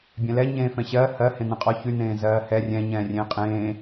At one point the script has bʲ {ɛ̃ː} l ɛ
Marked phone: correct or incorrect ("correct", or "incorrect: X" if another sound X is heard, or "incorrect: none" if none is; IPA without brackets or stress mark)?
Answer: incorrect: ɛ̃